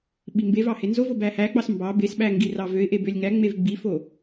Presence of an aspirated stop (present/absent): absent